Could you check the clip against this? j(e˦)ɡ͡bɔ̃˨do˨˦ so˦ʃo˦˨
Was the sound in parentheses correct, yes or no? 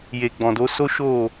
no